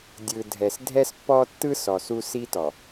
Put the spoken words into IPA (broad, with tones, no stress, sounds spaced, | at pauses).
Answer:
dʲ ɯ˨ dʱ ɛ˨ s dʱ ɛ˦ s pː ɔ˦ tː ɯ˦ s ɔ˨ s u˦ s i˦ t ɔ˨